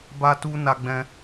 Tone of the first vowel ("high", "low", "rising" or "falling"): high